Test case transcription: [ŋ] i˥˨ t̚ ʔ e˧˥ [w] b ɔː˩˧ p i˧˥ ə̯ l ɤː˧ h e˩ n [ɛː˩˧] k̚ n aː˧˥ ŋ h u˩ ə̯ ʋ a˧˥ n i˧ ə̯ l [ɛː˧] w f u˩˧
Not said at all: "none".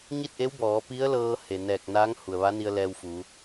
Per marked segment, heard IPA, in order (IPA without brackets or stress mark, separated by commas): ɲ, w, ɛː˧˩, ɛː˧